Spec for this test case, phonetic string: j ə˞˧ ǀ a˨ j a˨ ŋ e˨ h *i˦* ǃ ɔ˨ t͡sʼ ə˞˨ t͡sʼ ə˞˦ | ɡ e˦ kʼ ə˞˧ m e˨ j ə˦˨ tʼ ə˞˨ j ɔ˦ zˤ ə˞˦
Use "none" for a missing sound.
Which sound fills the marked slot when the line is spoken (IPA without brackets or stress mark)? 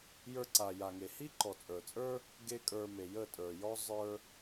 i˦